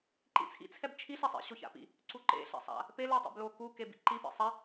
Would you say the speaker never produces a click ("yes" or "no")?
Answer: no